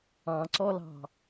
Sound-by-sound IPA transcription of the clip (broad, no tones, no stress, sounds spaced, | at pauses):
ɑ̃ ǀ ɔ l ɑ̤